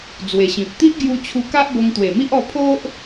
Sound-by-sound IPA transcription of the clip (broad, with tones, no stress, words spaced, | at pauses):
d͡zwe˨˩ɕĩ˨p̚ t̪i˦ʔ ɡju˦t͡ɕʰu˦ ka˦ʔbo˧ŋt̪we˨˩mi˦ʔ ɔ˧pʰo˦ʔ